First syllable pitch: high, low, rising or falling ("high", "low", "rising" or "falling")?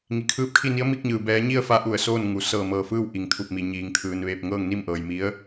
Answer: low